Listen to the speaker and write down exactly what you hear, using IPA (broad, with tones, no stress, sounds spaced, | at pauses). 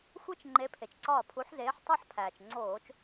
xʷ e˥ t͡ʃ ŋ͡ǃ e˨˦ pʰ e˩ t͡ʃ ǀ ɒː˧˩ pʰ u˨˦ ħ z eː˨˦ ħ tˤ o˥ ħ pʰ æː˩ t͡ʃ ŋ͡ǀ oː˧˩˧ t͡ʃ